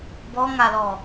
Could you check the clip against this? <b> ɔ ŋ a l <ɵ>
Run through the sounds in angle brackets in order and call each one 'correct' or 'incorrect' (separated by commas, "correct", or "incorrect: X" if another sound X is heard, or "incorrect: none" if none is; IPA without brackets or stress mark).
correct, incorrect: ɔ